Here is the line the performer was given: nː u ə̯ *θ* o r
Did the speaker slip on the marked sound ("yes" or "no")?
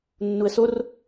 yes